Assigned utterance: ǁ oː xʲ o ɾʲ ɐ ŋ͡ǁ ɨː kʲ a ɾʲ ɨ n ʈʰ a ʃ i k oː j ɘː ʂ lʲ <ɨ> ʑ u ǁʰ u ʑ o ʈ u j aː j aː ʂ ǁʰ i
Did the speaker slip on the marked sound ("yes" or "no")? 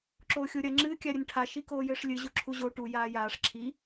no